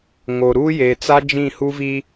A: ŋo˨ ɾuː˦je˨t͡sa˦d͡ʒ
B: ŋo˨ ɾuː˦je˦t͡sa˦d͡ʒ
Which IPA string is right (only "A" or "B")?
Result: A